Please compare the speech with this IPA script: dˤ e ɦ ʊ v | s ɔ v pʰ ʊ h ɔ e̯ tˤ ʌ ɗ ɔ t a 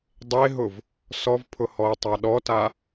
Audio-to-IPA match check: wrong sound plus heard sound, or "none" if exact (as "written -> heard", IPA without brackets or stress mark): ʌ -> a